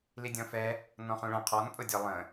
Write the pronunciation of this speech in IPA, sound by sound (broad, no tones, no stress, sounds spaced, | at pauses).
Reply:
l i dʲ ɔ̃ f ɛ | n ɔ̃ χ ũ ɭ ə̃ qʰ ɔ n pʼ ʊ dʲ ɒ lˠ ə̃